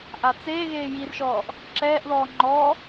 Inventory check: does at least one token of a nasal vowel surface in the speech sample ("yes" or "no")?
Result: no